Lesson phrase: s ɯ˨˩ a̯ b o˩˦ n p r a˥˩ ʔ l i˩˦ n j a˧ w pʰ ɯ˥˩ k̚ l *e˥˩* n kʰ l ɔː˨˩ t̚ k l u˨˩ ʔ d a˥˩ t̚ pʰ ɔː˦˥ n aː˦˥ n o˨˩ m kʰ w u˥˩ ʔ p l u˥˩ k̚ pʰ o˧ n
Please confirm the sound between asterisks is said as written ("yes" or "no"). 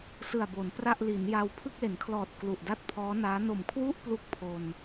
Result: no